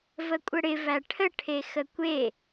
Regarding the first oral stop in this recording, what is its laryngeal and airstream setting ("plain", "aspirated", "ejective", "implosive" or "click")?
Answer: ejective